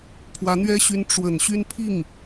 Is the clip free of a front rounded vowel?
no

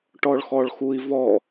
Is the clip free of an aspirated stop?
yes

